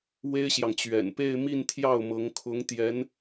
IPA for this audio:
w e˥ ɪ̯ ɕ j ɑ˨ ŋ t͡ɕ ɥ ɛ̰˨˩ n p e˥˧ ɪ̯ m i˥˧ n t̪ʰ j ɑ˥˩ ʊ̯ m ɤ˧˥ ŋ kʰ ʊ˧˥ ŋ t̪ j ɛ˧˥ n

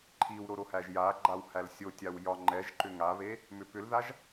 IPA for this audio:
ǃʰ i w ɾ o ɾ o h æ ʒ j a ɡ͡ǃ a w h æ l sʲ o tʲ a w j ɒ ŋ͡ǃ ɛ ʒ ǃ ʏ ŋ a β e | m ʏ p ʏ l ð a ʒ

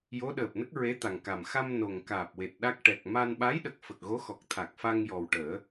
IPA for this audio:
j o˧˥ ɗ əː˨˩ p̚ n ə˦˥ k̚ ɹ e˧˥ t̪ a˨˩ ŋ k a˨˩ m x a˧ m n o˨˩ ŋ k aː˨˩ p̚ w e˨˩ t̚ ɗ a˦˥ k̚ ʈ ɛ˨˩ k̚ m a˧ n ɓ a˧˥ j ɗ ə˨˩ k̚ f ə˨˩ k̚ ɣ o˧˥ x ɔ˨˩ k̚ t̪ʰ a˨˩ k̚ f a˧ ŋ j ɔ˨˩ w ʈ əː˨˩˦

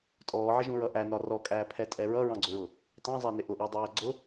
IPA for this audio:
tʼ ɔː ʕ ɪ ʒ ũ ɹ ʌ ʔ æ n ɒ r ɔ kʼ æː pʰ ɛ tʼ ɛ ɹ ʌ ɹ ɑ̃ ɡ͡ǀ ʊ ɹ ʊ | t ɑ̃ zˤ æ n ɪ ʔ ʊ ʔ ɔ dˤ æː ɡ͡ǀ ʊ

